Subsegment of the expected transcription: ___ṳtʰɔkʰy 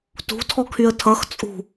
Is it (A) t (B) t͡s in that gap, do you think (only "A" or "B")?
A